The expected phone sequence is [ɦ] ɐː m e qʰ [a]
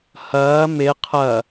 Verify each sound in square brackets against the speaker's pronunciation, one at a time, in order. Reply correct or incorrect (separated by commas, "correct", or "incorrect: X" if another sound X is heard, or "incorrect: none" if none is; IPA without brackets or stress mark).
incorrect: h, incorrect: ɐ